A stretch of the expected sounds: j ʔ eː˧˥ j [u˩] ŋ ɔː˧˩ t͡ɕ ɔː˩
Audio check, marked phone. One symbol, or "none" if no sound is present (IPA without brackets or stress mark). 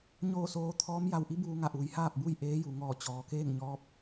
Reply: u˩